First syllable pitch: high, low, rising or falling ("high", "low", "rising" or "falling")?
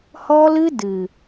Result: high